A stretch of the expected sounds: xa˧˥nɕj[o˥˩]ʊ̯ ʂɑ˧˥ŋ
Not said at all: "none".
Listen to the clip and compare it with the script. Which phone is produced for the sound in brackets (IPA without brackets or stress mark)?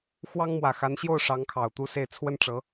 o˥˩